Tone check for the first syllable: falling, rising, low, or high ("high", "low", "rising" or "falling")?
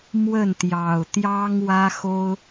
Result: falling